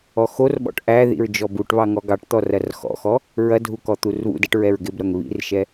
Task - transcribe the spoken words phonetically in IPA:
ɔ x o r ɓ ɔ̰ ʈ ʔ æ ð ḭ ɹ d͡ʒ ɔ b u ʈ β ɑ ŋ ɔ ɡ ɑ ʈ t̪ ɔ r ɐ r x ɔ̰ x ɔ | ɹ ɐ dʱ u k ɔ t̪ u r β ṵ d ɛ ʈ ɹ ɛ ɹ ɡ ɪ b ɾ ɐ ŋ β ḭ r ʃ ɛ

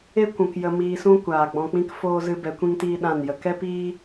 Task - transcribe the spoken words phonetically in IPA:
e˦ kʷ ũ˨ k j ə˧ m iː˧ s ũ˦ kʷ aː˨ ɡ͡b ɔ̃˧ k͡p ĩ˦ k f oː˦ z ɨ˦ b ɛ˧ kʷ ĩ˦ ŋ t iː˦ ɗ ã˦˨ n j ə˨ k ɛ˦ p iː˦

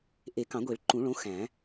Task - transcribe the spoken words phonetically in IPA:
ʔ e˨˩˦ k ɑ̃˨˩˦ ɡʷ i˨˩˦ ɭ ǃ ũ˨˩˦ ɭ õ˨˦ x æ̃˨˩˦

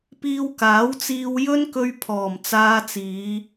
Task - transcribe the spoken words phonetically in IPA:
p iː˧ w k aː˨˥ w t͡s iː˧ w j ɵ˥ n k ɵ˧ ɥ pʰ ɔː˨˩ m t͡s aː˧ t͡s iː˨˧

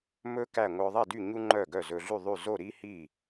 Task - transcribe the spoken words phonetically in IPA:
m ɵ˥ k æ˥˨ ŋʷ œ˧ ðˤ e˥˨ d y˥˨ ɲ u˥ ŋ͡ǃ œ˥˨ ɡ œ˥˨ z ɵ˧ ɮ y˥˨ ðˤ y˥˨ z o˥˨ ɾ i˥ h i˥˨

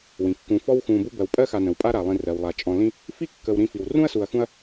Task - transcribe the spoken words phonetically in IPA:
w ĩ˩ kː ũ˨ f ɔ˦ w x ũ˨ b u˦ b ɜ˩ w pʼ ɜ˥ x a˨ n ə̃˩ w pʼ a˦ ɾ a˩ lˠ ĩ˨ r ɜ˩ w lˠ a˩ t͡ʃʼ ɔ̃˨ l ĩ˦ | f i˥ kː ə˨ w ɾ ĩ˦ f i˨ w r ũ˥ ɐ̯ s u˨ ɐ̯ x ũ˦ ɐ̯

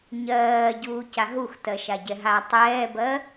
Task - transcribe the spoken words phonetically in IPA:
ɲ ɜː ɟ uː c a ɦ u x t ɜ ʃ a ɟ ɛ ɦ a tˤ ɛː b ɜ

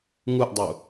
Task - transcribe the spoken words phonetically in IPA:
ŋ u ʔ dˤ u

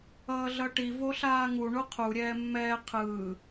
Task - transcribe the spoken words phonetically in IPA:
ʌː ɮ ʌ ʈ i v o ɬ aː ŋ u ɳ u qʰ u ɾʲ ɛː mː ɛː qʰ ɯː

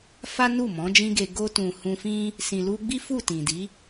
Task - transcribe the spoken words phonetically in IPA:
f a˦ n u˦˨ m ɔ̃˨˦ d͡ʒ ĩ˦ ɡ e˧ ɡ o˧ t ũ˨ h ũ˧ f ĩ˦ | s ĩ˨ l u˧ ɡ͡b i˦ f u˦˨ t ĩ˨ d i˨˦

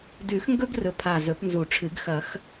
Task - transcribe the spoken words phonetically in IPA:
d ʉ˨˩˦ x ŋ ɡ ɵ˦ ɡ r ɵ˨˩ pʰ a˨˩ z ɵ˨˩˦ p n z u˨˩˦ ʈ͡ʂʰ ɨ˨˩˦ ɡ x ɐ˨˩˦ x

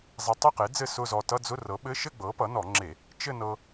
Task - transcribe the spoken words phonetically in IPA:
zˤ e˧ tˤ ɘ˥˧ q e˩˥ d͡z ɘ˥˩ s ʊ˥˧ z ɔ˧ t ʌ˧˥˧ d͡z ʊ˧˥˧ r ɤ˩˥ ɓ ɘ˧˥˧ ʃ ɘ˥˧ ɡ͡b ɤ˩˥ p ʌ˩˥ n ɔ˧˩˧ ŋ͡ǁ e˧˩˧ | t͡ʃ ɘ˥˧ n ɤ˧

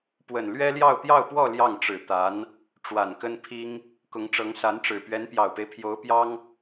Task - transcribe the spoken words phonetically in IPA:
p w ə˨˩ n l ɥ ɛ˥ l j ɑ˥˧ ʊ̯ t̪ j ɑ˥˧ ʊ̯ p w ɔ˥˧ l j ɑ˥˩ ŋ ʈ͡ʂ ɻ̩˨˩ t̪ a˧˥ n | ʈ͡ʂ w a˨˩ n k ə˥ n pʰ i˥ ŋ | k ʊ˧˥ ŋ ʈ͡ʂ ɤ˧˥ ŋ s a˧˥ n ʈ͡ʂ ɻ̩˨˩ p ɥ ɛ˧˥ n p j ɑ˨˩ ʊ̯ p e˦ ɪ̯ pʰ j o˧˥ ʊ̯ p j ɑ˥ ŋ

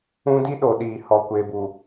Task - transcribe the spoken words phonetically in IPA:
ũ˦ d i˦ ɗ o˨ ɗ iː˨ h ɔ˨ kʷ e˨ b u˨

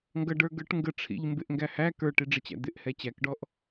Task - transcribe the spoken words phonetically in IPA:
ŋ ɡ ʌ ɖ ə˞ ɡ ə˞ ʈ ŋ ɡ ə ʈ͡ʂʰ ḭ ʎ m b ɪ ʔ ŋ ɡ æ h æ k ə˞ ʈ i ɖ͡ʐ ə t͡ɕ æ̰ d̪ ɪ ʔ h ɛ t͡ɕ æ k ɖ ɔ ʔ

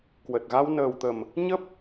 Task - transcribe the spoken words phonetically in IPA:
k w ə˨˩ t̚ ɣ a˧ w n əː˨˩ w t̪ ə˨˩ m | ɲ ə˦˥ p̚

